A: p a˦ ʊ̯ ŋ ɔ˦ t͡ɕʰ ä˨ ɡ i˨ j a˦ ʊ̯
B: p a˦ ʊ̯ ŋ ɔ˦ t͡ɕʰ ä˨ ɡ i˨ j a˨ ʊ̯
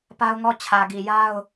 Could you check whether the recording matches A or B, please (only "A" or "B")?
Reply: A